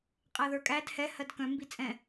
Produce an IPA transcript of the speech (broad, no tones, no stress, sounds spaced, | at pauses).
qʼ æ ð ə˞ kʼ æ d h ɛ h ɜ d k œ̃ m b i t͡sʼ ɛ̃